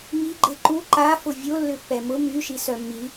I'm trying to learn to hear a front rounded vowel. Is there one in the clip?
yes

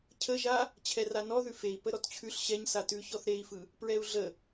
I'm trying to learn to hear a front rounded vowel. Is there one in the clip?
no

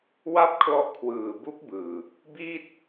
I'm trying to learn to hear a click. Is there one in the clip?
no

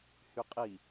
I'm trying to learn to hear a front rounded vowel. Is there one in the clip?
yes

